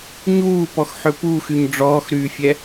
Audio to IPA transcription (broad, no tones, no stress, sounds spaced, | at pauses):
ɲ uː p ɔ x ħ ø p uː x y ɲ ɖ͡ʐ ɔː x ɾ yː fʲ ɛ